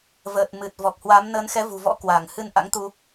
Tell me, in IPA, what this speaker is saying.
vəː˨˩t̚mɨ˨˩t̚ vɔ˨˩k̚hwa˨˦m nəː˨˦nxɛ˨˦vṳ˨˩vɔ̰˧˥ kwa˧˩ŋhɨ˧n ʔa̰˧˥ŋt̪u˧

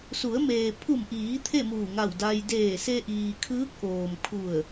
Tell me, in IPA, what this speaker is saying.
su˩˧ə̯meː˩pʰu˧˩mʔiː˩˧ t̪ʰe˥˨muː˧˩ŋa˧˩w da˧j deː˧˩se˧ʔiː˩ kʰɯː˧˥k̚ʔoː˩mkʰu˧˩ə̯

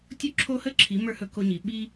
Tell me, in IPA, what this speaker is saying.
tʲo˧˥ǁʰo˧hə˧˥ǁʰi˩˧ mə˞˥hɵ˧˥ ko˧ɲi˩˧ɓi˥

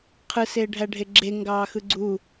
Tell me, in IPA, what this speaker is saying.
qʰɯseːɖʱæɖʱe ɡ͡ǁeŋɡɑːxɯ ɡ͡ǀu

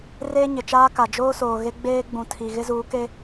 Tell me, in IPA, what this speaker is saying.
reː˦ɲɪ˨t͡ʃaː˦ka˨ d͡ʒoː˦soː˨ ɣe˦ɡ͡beː˦ ɡ͡bũ˨tʰi˨ ɣɪ˦zuː˨˦ke˦

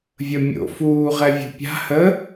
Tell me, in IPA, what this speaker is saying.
vʲəmʲo̰ fuːʁɛvʲo̤ pʲa̤ hə

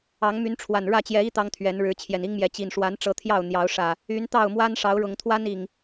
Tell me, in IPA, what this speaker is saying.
ɑ˨˦ŋmy˨˦nʈ͡ʂʰwa˨˩n ɻä˥˨t͡ɕjɛ˨˦i˦ t̪ɑ˦ŋt̪ʰɥɛ˨˦n ɻɻ̩˨˦t͡ɕʰjɛ˨˩ni˦ŋmjɛ˨˦ t͡ɕi˨˩nʂwa˨˦nʈ͡ʂɤ˨˦ t̪ʰjɑ˥˨ʊ̯n̪jɑ˨˦ʊ̯ʂä˨˩ | y˨˦nt̪ɑ˥˨ʊ̯mwa˦n ʂɑ˨˦ʊ̯ɻʊ˨˩ŋ t̪ʰwa˦n i˨˩ŋ

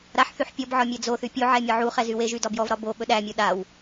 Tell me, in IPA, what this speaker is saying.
ɾaħθyħ pʲɔbʕɒ mʲɛd͡zoθy pʲo ʕɛmʲɒʕuχɛ zyweʒy dɒbjɔvɾɒ bo ɓɵɗæmʲo ɗaw

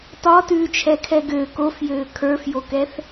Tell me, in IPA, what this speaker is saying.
tɒtʉːt͡ʃʰɛkʰɛ ɡø kofjøː kʰə˞fjokɛθ

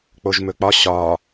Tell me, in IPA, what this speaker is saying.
k͡poʒmɵk͡pɒ ɕɒː

